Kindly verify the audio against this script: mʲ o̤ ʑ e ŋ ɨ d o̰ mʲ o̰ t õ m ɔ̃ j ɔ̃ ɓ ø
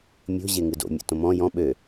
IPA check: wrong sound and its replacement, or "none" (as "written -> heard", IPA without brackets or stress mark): none